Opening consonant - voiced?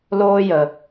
yes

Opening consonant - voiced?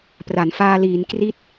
no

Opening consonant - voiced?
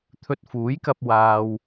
no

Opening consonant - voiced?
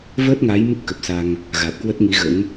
yes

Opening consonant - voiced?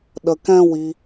yes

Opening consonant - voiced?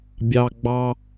yes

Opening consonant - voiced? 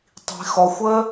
no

